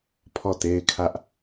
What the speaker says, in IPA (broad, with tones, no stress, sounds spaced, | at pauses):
pʰ ɔ˦˨ t e˦ ɪ̯ kʰ ä˦ ʔ